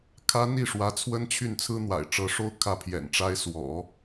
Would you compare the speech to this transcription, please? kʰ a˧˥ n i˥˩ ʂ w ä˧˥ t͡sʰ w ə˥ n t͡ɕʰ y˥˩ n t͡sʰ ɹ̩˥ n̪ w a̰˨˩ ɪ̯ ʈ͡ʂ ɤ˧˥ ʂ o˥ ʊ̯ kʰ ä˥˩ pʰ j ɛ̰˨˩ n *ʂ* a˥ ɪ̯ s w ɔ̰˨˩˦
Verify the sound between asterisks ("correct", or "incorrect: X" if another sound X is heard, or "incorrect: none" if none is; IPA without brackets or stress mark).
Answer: incorrect: ʈ͡ʂ